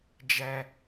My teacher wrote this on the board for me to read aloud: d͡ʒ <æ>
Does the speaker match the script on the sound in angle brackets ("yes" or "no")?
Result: yes